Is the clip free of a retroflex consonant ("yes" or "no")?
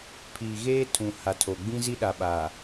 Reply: yes